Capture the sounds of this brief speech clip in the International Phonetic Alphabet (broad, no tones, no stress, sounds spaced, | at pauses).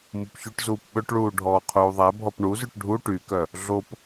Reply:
m u p ç ʉ ʈ z uː p ɓ ɵ ʈ ɭ uː ɖʱ ɔː qʰ uː ðˤ æ bʱ ɔ p ɳ u z y ʈ ɖʱ u ʈ y k œ | ɮ o p